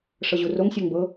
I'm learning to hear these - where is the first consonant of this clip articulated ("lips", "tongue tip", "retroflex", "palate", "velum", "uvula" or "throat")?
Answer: retroflex